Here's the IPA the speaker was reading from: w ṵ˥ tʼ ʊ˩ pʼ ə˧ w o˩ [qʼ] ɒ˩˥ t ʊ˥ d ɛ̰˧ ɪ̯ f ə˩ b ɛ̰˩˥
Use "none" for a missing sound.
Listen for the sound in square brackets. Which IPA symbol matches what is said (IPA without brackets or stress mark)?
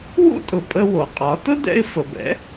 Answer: qʼ